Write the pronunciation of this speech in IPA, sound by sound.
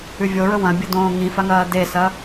ʉvʲoɹɵ wɐ̃bʲɐdõː ŋĩfaŋɐː desɐ

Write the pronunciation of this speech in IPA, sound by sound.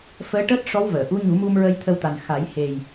fəː˧˥ʈəː˦˥t̚ ʂɔ˧˥wvəː˨˩˨ʔu˧˥ ɲu˨˩˦mu˧m ɹə˧jt̪ʰə˧wt̪a˨˩n xa˨˩˦jhe˨˩j

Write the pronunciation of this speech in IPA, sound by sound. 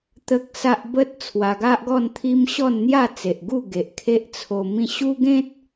t̪ə˦k̚sa˦ʔ bə˦t̚ t͡sʰwa˧ɡa˦ʔɡɔ˥˧nt̪ʰi˦m ɕɔ˥˧nn̪ja˥˧t͡se˨ʔɡu˥˧ ɡe˨ʔkʰe˦ʔt͡sʰo˧mĩ˦ ɕu˦ɡẽ˦t̚

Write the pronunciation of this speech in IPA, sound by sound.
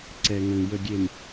ǀɛ˨ŋə̃˨ŋjə˨ ɡʲe˨m

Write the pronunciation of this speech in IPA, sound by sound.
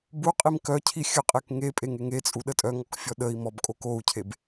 buqʼim kœcʰi xʲəqʼek ŋe pʼeŋeŋet͡sʼu ɗətʼœŋɔk fʲɔɗəi̯mɔb kʼokou̯cʰeb

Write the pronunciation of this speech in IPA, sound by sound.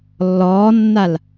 lːɔːnːal

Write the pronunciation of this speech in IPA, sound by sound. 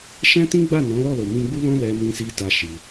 ʃɛ̃˦tĩ˦ɡ͡ba˦˨ nɔ̃˨˦lɔ˦˨lo˨ mĩ˧ɡ͡bu˦lɔ̃˦ lɛ˧mĩ˧si˧ ta˦ʃi˧

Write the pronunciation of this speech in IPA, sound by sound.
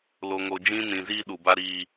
lo˨ŋo˨d͡ʒĩ˦ nĩ˨ziː˦ ɗu˨ba˦ɾiː˦

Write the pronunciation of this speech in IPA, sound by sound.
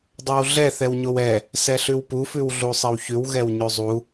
dˤowɮɛ θɛwɲowɛ | sɛɬʉwpu fʉwɮusˤɛwçʉw ɣɛwɲʉzˤu

